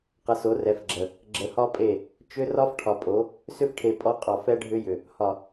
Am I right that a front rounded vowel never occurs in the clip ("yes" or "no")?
no